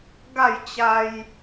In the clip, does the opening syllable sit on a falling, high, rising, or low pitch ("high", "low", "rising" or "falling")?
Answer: falling